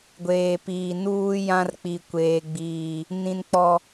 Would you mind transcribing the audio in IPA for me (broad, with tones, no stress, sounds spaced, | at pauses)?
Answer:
ɡʷ eː˨ p iː˨ n uː˦ j ã˦ r k͡p i˨ kʷ eː˨ ɡ͡b iː˨ | n ĩ˨ n k͡p ɔ˨